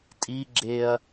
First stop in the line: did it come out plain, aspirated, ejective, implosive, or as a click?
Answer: ejective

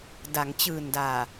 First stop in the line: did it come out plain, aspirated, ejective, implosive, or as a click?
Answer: plain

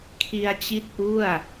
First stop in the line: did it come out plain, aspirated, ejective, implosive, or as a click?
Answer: aspirated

